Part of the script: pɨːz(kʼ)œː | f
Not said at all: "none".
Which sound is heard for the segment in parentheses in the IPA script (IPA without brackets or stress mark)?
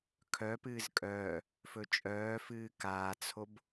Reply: kʼ